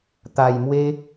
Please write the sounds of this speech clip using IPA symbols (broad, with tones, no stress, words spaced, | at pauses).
t̪a˨˩jmwe˧